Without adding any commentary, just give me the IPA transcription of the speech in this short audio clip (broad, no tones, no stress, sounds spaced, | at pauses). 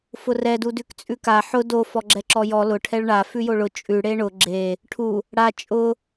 f ʊ r ɛ d u d ʉ k t͡sʼ ʉ k a ħ ʊ d o f ɔ ɡ͡ǁ ɛ ǁ ɔ j ɔ l ʊ ʈʰ ɛ ɭ ɳ a f ʉ j o ɭ ʊ t͡ʃʼ ʉ ɽ e ɳ ʊ ɡ͡ǁ e | ʈʰ u | ɽ a t͡ʃʼ ʊ